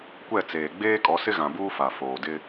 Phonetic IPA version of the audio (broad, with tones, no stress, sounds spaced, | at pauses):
kʷ ɛ˦˨ t͡s eː˨ ɡ͡b eː˦ kʼ ɔ˨˦ s ɪ˦ ɣ ã˨ b uː˦ f a˨ f oː˨ d ɪ˦